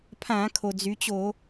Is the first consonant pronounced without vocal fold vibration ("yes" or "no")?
yes